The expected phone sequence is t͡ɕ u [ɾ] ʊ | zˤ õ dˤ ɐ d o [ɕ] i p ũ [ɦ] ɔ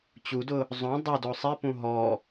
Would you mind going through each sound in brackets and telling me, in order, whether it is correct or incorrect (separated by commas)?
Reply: incorrect, incorrect, correct